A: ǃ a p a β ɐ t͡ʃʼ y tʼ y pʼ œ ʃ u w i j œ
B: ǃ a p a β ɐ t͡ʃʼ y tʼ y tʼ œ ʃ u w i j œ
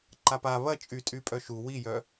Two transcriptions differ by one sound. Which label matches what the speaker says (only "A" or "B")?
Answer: A